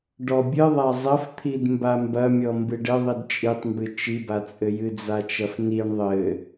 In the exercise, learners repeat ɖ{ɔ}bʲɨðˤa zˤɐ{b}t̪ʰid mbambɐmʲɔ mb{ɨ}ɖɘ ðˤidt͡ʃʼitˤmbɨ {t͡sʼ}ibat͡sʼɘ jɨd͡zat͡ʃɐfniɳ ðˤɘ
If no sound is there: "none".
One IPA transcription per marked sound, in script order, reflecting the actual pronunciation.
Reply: ɔ, f, ɨ, t͡ʃ

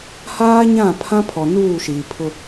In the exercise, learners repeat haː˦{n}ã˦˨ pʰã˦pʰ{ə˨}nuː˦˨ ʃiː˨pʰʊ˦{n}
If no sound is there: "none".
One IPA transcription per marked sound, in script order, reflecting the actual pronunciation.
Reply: ɲ, ɔ˨, none

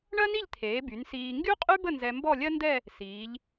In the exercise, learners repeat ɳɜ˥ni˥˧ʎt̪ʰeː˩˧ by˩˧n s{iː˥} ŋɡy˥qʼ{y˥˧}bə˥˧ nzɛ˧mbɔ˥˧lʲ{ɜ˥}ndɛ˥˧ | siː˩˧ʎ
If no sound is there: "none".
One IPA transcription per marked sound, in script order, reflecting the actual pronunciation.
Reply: iː˧, y˥, ɜ˥

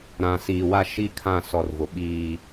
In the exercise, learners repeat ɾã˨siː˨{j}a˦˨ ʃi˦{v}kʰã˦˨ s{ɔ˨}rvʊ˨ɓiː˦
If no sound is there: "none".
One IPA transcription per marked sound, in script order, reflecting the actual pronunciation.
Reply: w, none, ɔ˨

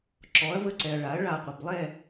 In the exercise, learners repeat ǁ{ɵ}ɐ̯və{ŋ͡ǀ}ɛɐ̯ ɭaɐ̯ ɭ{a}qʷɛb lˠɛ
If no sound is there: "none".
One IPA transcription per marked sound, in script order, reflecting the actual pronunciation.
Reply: ɔ, ǀ, a

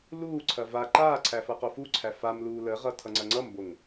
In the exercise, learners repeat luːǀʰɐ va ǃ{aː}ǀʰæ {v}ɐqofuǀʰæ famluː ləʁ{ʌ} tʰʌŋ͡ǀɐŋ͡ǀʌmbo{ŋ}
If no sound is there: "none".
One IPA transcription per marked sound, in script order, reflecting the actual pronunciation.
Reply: aː, f, ʌ, ŋ

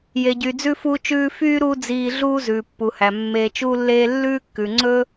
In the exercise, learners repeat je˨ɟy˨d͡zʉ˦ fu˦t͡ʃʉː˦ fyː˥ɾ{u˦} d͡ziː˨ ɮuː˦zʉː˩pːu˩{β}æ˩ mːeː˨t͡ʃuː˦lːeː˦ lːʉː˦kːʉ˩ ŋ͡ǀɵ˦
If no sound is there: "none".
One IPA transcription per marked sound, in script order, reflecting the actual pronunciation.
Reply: u˦, h

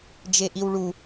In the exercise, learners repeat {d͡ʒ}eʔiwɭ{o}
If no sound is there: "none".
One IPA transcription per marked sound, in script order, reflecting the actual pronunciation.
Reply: d͡ʒ, u

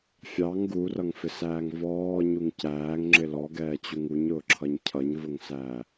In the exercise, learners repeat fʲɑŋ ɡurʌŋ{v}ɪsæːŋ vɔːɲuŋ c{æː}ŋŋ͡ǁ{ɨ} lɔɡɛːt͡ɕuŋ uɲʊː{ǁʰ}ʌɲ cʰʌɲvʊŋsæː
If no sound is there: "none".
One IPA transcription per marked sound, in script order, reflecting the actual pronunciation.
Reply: f, æː, ɪ, ǁʰ

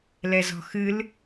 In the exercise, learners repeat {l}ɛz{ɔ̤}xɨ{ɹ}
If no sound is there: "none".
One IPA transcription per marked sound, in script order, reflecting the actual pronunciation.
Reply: l, ɔ̤, l

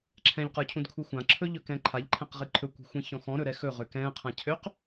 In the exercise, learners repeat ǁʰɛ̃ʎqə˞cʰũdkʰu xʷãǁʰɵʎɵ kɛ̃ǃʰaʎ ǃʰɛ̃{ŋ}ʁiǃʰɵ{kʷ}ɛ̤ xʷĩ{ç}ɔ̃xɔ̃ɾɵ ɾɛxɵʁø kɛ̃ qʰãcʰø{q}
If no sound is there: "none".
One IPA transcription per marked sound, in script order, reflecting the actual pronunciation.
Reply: q, kʷ, ç, q

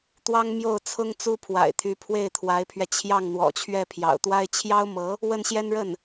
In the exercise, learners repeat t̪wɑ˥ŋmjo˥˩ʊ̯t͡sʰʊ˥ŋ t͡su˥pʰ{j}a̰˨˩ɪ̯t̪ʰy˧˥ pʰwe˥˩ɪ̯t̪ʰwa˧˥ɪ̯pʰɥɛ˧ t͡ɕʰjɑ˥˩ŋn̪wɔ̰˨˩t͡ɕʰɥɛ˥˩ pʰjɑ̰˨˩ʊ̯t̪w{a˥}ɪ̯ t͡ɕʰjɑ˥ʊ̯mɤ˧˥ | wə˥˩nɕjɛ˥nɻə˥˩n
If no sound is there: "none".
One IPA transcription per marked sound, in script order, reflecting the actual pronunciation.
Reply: w, a˥

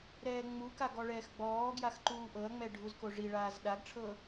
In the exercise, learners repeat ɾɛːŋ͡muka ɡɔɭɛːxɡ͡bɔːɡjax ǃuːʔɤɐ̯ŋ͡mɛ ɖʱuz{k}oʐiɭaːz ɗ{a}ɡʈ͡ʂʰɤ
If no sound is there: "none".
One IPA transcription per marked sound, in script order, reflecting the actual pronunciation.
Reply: k, a

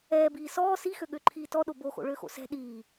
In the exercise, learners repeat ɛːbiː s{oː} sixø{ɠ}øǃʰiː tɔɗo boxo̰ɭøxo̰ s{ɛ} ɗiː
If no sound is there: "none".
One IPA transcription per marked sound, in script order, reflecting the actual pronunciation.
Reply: ɔː, ɠ, ɛ̤

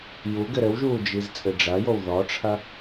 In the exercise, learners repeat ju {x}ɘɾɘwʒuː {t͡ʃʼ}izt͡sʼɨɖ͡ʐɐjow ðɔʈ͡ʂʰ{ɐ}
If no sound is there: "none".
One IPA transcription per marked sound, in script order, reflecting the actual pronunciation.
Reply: ɡ, d͡ʒ, ɐ

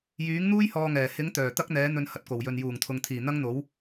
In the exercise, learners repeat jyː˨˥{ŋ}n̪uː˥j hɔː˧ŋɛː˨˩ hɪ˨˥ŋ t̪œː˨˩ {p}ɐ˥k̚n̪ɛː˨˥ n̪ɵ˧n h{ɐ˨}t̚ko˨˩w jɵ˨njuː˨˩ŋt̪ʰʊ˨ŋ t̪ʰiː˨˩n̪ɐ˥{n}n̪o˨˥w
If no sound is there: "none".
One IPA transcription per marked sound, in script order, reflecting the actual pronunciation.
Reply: ŋ, t̪, ɐ˨, ŋ

